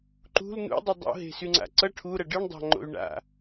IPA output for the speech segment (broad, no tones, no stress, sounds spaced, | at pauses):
ǃ ṳ l n ṵ dˤ y dˤ o̰ ɦ e̤ s y ŋ͡ǀ a̰ ǀ ʌ ʈʰ u ɾ ʌ ɖ ɯ ɳ dˤ ɑ̤ ŋ͡ǃ o̰ y̯ ɳ a̰